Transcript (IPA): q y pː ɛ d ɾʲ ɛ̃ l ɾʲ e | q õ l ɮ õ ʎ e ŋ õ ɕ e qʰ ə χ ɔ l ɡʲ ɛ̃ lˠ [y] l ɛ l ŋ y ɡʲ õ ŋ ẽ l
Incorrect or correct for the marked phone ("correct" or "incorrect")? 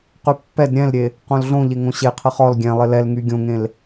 incorrect